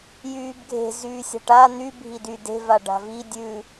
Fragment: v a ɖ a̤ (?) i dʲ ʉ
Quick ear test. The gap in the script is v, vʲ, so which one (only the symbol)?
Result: v